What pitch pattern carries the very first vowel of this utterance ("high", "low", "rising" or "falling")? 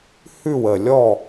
falling